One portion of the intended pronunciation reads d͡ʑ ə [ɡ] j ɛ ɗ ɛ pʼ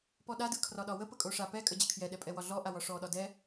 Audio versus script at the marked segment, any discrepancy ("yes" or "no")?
yes